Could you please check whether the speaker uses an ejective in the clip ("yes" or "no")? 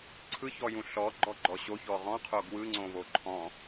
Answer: no